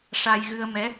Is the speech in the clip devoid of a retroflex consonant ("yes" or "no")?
no